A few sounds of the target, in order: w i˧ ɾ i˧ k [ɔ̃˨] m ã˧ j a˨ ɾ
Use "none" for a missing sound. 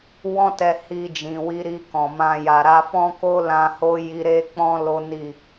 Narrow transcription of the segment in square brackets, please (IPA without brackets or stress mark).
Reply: ɔ̃˨